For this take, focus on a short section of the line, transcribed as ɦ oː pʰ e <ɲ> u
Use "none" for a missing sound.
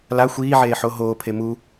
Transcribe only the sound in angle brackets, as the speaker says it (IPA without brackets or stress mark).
m